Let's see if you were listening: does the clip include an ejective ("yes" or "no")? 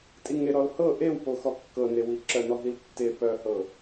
yes